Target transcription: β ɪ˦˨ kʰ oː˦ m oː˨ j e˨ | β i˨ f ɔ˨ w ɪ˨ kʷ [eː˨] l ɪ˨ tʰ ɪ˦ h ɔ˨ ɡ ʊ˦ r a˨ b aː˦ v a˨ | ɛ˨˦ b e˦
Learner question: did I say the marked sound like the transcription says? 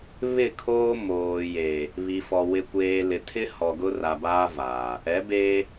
yes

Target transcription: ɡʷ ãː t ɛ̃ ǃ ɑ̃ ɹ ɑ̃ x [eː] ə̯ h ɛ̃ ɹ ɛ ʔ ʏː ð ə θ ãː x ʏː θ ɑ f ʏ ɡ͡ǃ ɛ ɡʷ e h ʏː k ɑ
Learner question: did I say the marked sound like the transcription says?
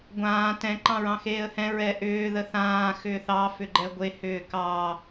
yes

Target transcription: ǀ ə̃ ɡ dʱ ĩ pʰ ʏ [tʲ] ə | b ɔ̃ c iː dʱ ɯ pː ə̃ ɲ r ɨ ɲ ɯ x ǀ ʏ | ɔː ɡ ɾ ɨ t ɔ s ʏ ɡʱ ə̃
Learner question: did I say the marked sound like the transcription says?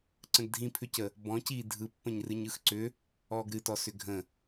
no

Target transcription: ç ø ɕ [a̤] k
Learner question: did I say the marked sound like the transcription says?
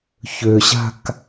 yes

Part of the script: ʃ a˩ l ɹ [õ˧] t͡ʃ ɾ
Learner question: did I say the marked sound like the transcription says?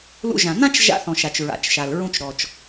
no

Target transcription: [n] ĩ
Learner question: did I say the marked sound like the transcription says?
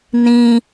yes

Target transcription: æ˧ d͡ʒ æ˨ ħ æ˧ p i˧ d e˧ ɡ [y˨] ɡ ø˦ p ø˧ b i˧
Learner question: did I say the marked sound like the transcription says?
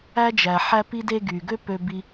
yes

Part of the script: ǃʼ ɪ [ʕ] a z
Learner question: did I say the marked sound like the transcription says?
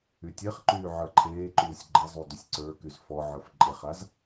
no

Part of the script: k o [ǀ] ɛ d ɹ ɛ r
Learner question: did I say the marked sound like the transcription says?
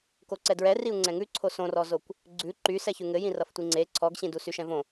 yes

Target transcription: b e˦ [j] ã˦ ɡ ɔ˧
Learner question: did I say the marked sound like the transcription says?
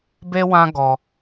no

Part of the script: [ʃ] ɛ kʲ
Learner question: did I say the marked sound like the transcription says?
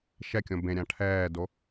yes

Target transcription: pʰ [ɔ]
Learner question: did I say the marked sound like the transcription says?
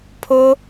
no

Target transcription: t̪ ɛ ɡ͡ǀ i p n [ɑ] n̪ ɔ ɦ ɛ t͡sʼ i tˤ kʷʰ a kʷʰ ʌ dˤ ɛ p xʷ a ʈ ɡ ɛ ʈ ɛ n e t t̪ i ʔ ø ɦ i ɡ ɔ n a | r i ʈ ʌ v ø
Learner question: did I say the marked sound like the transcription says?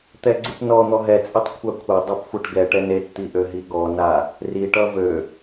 no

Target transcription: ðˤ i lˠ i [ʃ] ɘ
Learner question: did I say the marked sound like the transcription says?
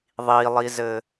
no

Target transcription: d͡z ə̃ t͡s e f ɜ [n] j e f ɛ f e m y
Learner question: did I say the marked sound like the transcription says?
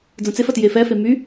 no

